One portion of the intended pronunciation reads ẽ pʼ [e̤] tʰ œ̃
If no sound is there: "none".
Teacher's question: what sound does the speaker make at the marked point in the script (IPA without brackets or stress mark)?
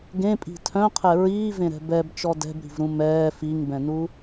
i̤